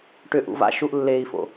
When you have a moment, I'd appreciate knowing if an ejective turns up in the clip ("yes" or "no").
no